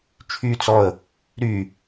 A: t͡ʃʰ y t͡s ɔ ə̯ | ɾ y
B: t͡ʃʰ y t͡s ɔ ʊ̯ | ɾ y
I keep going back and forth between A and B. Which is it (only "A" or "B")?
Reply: A